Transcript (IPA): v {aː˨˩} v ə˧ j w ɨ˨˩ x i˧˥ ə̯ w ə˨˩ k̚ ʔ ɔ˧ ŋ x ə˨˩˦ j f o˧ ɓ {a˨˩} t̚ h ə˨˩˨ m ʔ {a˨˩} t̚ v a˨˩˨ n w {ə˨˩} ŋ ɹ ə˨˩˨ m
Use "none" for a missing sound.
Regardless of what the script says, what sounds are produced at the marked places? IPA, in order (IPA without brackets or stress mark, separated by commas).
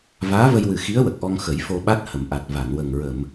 aː˧˥, a˦˥, a˨˩, ə˨˩